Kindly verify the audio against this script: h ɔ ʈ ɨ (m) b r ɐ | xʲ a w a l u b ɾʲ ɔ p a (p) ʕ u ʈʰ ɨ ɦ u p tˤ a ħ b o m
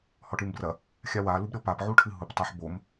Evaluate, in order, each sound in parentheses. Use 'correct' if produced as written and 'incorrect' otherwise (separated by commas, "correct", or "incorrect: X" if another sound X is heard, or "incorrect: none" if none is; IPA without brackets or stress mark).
correct, correct